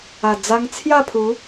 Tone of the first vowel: low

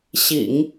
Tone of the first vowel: low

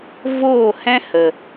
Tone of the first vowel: falling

